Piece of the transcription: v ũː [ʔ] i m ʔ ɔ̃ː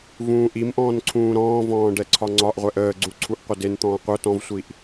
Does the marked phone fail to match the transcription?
no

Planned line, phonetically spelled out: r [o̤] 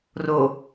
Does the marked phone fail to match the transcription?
yes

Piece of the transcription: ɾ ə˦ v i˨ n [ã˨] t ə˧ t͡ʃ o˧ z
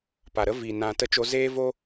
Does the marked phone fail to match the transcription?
no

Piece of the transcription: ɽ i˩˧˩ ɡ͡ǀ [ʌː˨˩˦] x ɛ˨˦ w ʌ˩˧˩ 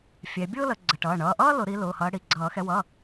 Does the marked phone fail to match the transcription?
no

